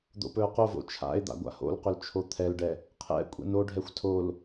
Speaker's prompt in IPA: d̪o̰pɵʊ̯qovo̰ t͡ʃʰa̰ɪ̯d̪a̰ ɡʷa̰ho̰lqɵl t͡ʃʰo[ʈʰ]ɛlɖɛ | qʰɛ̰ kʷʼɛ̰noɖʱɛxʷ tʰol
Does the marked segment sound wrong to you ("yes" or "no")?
yes